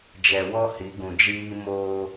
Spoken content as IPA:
d͡ʒ ɛ˨ w ɔ˦ h i˨˦ ɡ ũ˨ d͡ʒ iː˦ m oː˦

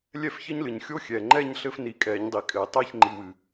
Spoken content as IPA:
lʲ ɛ˥˧ f ç ɘ˥ ɲ l ɨ˩ ɲ xʲ o˥ xʲ ɛː˩ ŋ͡ǃ ɛ˥˧ ɲ ɬ ɘ˥ f n i˨˩˦ kʼ ɛː˨˩˦ ɲ dˤ i˩ kʼ ɘː˨˩˦ tˤ ɛː˥˧ ç ŋ͡ǃ i˩˧˩ w ɨ˩

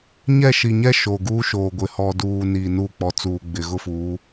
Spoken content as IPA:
ɲ ɛ˦˨ ʃ i˨ ɲ ɛ˦ ʃ o˨ ɡ uː˦ ʃ oː˨ ɡʷ ɪ˨ h ɔ˨ d uː˨ n iː˨ n uː˦˨ k͡p ɔ˨ t͡s uː˨ ɡ͡b ɪ˨ ɣ ʊ˦ f uː˨˦

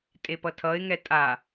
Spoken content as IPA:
tʼ e p ʌ tʰ ʌ ɪ̯ ŋ ɛ tʼ a

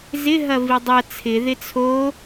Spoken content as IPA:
z ɪ ɦ ɐ v i dˤ ɐ t͡sʰ ɪ ð ɪ t͡sʰ o

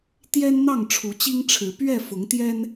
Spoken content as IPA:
t̪ j ɛ˦ n n̪ ɑ˥˨ ŋ ʈ͡ʂʰ u˨˦ t͡ɕ i˦ ŋ ʈ͡ʂʰ ɻ̩˨˦ p ɥ ɛ˥˨ f ʊ˨˦ ŋ t̪ j ɛ˦ n

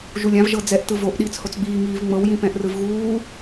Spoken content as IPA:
ʒ u lʲ ã v ʒ ɤ d͡z ɛ ʔ t ɯ v o ʔ ɗ iː t͡s h o t͡s ɡ͡b iː ŋ iː v ŋ͡m ɤ w j ĩ p ɛ̃ ʔ r ɯ v ɣ uː

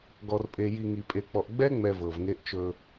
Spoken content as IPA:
ɡ ɔ˨ r pʼ e˨ j i˨ ŋ i˨ pʼ e˨ k͡p ɔ˨ ʔ ɡ͡b ɛ˦ ŋ͡m ɛ˨ v ɤ˨ v ŋ e˦ ʔ t͡ʃ ɵ˦

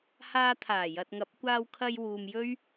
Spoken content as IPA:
h aː˧ t̪ʰ aː˨˩ j ɐ˨ t̚ ŋ ɐ˨˥ p̚ kʷ aː˧ w kʰ ɐ˧ j w uː˧ m j ɵ˥ ɥ

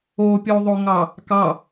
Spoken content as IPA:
o pʲ o ðˤ o ŋ ɑ | k ɑ

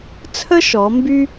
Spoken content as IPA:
t͡sʰ ə˦ ʃ ɔ˩˧ m b y˦

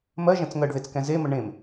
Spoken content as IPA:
m ɜ ʒ ɛ̃ t͡s ŋ ɜ ɖ ð e t͡s k ɛ̃ z e m ə ɳ ẽ m

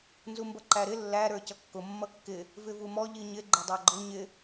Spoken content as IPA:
n z u m b ʌ ǃ æ ɾ ɪ lː æ ɾ ə˞ c ʌ kː ʊ mː ʌ kː ɪ | v ɪ v u m ɔ ʎ i ɲ ɪ ɡ͡ǃ ɪ dˤ ɑ ɡ͡ǃ ʊ ɲ ɪ

